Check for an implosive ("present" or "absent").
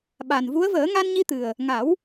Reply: present